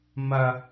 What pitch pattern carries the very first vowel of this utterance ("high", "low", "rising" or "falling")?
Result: high